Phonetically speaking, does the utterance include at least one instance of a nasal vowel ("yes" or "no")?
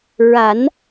no